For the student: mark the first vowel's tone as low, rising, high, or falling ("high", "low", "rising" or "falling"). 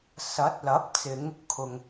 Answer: rising